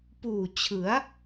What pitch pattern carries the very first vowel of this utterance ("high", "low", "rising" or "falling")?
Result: low